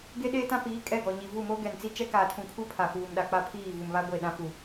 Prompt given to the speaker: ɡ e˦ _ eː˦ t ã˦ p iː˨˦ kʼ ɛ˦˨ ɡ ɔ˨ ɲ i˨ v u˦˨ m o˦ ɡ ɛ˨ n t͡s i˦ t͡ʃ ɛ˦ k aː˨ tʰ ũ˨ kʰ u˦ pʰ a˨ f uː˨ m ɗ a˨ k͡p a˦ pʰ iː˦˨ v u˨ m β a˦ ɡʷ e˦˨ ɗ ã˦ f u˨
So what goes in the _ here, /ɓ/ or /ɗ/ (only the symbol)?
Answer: ɗ